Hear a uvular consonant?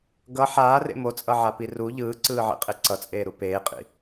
yes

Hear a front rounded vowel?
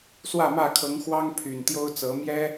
yes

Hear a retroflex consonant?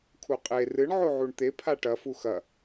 yes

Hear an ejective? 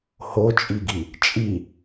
yes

